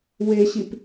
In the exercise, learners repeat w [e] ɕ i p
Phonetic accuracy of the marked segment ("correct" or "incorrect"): correct